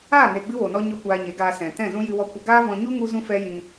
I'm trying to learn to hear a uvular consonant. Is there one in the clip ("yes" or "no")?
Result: no